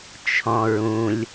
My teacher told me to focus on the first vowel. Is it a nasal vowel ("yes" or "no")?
yes